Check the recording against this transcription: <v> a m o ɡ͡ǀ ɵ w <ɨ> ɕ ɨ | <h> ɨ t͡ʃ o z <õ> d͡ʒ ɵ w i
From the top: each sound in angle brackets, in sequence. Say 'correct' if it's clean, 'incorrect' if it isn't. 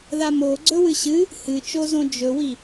incorrect: ð, correct, correct, correct

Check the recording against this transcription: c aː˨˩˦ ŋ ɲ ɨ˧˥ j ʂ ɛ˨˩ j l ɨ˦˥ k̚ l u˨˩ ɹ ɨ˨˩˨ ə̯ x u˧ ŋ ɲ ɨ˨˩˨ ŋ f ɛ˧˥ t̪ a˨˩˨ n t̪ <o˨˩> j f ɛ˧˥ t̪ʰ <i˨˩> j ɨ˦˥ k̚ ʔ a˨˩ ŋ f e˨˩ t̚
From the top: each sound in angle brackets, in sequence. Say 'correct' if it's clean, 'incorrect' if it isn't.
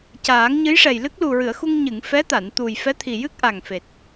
incorrect: u˨˩, correct

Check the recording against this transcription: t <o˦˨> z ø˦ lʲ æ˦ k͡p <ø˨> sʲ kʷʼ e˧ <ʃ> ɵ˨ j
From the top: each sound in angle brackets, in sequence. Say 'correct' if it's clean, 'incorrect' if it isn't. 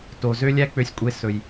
incorrect: o˨, incorrect: ø˧, incorrect: s

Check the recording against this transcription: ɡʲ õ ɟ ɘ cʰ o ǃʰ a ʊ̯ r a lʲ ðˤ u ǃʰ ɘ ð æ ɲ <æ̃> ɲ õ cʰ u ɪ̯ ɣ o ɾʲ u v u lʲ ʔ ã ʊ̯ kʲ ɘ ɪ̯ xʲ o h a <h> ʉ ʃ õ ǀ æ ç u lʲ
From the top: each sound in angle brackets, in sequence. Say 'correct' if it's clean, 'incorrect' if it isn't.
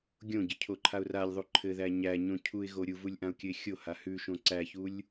incorrect: æ, correct

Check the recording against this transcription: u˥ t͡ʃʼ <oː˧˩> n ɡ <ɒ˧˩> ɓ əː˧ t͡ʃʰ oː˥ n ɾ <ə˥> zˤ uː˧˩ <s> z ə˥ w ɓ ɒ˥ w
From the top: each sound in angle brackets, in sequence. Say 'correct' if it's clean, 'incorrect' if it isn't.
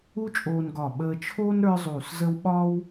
incorrect: oː˧, correct, incorrect: ə˞˥, correct

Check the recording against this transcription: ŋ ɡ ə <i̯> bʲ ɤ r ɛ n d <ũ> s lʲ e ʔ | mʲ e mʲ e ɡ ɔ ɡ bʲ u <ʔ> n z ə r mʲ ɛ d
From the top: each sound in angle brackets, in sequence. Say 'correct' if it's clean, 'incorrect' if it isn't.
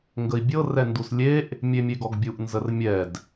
correct, incorrect: u, correct

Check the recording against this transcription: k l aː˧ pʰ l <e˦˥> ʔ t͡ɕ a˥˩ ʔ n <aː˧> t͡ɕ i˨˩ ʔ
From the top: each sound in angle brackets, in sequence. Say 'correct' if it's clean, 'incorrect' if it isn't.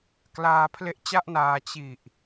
correct, correct

